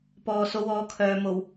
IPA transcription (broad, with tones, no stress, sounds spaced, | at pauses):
p ɔː˨ s o˨˧ w ɔː˨˧ kʰ œː˨ m o˨˩ w